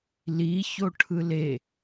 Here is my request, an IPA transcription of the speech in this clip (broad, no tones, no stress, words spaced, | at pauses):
liçoʈʰɯ le